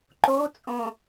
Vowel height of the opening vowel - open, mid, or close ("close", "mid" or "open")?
mid